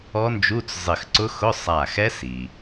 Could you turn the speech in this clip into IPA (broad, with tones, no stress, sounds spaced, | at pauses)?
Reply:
ɔ˦˥ n d͡ʒ u˧˥˧ t͡s zˤ ɪ˧˩ x ǀ ʊ˦˥ x ʊ˧˥˧ sˤ a˧˩ x ɛ˦˥ s i˩